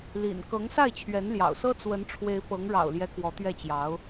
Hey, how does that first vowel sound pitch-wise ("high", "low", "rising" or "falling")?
low